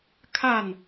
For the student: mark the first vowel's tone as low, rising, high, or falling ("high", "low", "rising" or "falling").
falling